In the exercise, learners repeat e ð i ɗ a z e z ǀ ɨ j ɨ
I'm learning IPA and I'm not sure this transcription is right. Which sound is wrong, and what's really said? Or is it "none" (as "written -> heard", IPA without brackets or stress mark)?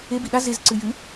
ð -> b